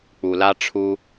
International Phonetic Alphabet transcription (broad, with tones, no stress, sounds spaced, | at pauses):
k͡p u˨ l a˦ ʈ͡ʂʰ u˦